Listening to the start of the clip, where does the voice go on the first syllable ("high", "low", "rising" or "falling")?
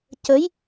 rising